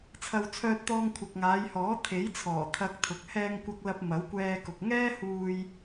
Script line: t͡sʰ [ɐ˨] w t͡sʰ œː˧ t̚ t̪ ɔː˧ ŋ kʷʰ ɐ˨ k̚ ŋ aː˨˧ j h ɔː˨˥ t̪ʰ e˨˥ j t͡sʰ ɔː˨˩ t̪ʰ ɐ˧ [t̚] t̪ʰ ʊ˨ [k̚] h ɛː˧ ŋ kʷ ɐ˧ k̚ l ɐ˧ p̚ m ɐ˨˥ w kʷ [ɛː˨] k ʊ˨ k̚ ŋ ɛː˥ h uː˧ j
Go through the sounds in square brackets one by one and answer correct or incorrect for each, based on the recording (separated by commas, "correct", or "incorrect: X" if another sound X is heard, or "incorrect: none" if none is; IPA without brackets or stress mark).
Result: correct, incorrect: k̚, correct, incorrect: ɛː˧